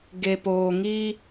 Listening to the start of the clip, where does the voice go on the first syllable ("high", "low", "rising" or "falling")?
low